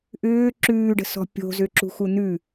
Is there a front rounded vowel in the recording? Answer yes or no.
yes